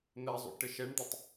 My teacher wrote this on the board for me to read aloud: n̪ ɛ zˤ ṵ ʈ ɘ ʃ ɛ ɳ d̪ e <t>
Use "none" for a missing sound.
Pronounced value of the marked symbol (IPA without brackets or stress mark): tˤ